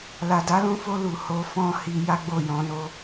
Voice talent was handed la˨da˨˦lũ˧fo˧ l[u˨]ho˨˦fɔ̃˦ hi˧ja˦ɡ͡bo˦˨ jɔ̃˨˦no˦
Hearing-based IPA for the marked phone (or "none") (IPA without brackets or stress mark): u˨